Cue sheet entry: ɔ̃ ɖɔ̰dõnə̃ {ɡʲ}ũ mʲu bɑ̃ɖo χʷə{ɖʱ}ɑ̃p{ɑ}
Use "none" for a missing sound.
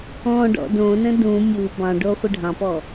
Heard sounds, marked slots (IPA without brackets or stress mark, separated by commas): d, ɖʱ, ɔ